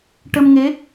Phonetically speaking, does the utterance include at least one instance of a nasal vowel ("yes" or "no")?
no